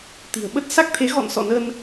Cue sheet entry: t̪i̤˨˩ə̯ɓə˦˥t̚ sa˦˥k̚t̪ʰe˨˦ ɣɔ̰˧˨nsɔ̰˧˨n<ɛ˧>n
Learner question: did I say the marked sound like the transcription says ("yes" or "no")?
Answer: no